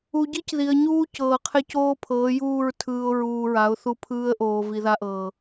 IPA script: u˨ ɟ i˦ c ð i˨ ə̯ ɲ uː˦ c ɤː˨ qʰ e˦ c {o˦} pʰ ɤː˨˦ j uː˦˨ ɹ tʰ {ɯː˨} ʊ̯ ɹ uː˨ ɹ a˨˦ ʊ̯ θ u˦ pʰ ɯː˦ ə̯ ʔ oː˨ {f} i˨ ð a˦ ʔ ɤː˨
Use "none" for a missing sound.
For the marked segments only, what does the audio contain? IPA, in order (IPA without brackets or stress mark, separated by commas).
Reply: oː˦, ɯː˨, v